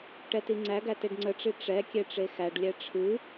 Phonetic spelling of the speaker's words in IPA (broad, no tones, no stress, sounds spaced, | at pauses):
ʈ ɛ t i ŋ͡ǀ æ ɡ æ t e ɖ ŋ͡ǀ ə ʈ͡ʂ i ʈ͡ʂ ɛ kʲ e ʈ͡ʂ e x æ ɖ lʲ ɛ ʈ͡ʂʰ ɨ